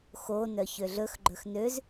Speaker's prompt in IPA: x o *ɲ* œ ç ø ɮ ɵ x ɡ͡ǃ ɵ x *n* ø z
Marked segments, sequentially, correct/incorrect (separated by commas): incorrect, correct